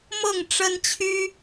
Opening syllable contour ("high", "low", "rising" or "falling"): falling